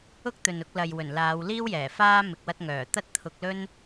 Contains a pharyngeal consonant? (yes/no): no